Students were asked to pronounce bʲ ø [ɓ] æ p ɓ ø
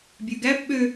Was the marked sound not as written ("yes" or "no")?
yes